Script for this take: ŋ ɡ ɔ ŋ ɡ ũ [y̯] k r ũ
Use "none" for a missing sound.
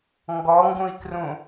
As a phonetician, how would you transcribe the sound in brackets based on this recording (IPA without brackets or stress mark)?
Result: i̯